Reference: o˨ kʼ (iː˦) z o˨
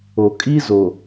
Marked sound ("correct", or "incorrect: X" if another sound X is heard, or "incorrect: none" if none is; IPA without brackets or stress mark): incorrect: i˦